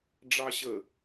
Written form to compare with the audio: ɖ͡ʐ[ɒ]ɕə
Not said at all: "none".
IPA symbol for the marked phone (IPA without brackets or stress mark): ɑ